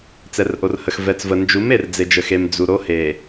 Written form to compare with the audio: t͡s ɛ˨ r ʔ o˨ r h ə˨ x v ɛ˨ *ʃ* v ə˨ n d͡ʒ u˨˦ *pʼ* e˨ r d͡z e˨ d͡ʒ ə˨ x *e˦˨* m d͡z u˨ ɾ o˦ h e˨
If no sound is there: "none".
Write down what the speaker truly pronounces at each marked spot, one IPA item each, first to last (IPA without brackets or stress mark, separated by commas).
t͡s, m, e˨